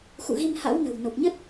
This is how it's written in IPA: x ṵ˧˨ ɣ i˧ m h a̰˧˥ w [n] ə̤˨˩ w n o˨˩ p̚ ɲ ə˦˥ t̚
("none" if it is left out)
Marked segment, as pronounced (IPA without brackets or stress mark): n